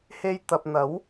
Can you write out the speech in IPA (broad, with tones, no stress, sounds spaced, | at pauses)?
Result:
h e˧ j t̪ ɐ˨ p̚ n̪ ɐ˨˥ w